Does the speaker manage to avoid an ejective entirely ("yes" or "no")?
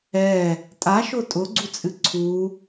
no